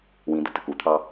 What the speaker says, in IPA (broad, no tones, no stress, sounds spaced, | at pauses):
w ĩ d̪ ə t ə k u t̪ʰ ɑ